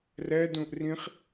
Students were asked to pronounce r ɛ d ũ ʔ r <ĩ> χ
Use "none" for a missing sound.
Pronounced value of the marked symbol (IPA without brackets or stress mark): ĩ